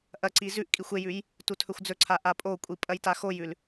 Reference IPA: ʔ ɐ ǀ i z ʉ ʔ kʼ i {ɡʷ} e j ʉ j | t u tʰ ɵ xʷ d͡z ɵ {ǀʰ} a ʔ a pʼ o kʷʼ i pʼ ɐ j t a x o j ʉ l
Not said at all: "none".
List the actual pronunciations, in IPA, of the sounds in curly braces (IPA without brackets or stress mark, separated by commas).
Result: xʷ, ǀʰ